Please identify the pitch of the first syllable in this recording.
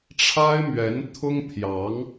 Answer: high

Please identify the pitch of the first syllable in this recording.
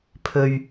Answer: low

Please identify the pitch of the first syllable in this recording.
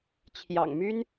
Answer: low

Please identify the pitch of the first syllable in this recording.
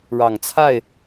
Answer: low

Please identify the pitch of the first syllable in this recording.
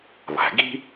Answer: low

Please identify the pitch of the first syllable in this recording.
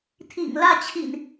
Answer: low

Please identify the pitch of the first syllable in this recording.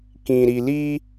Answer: low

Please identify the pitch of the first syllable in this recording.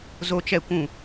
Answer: high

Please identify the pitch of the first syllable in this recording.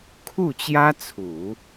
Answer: falling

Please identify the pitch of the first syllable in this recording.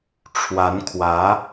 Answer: rising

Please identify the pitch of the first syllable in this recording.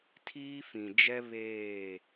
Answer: high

